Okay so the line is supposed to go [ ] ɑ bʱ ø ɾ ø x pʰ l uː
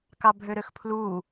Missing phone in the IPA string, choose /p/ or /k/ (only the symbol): k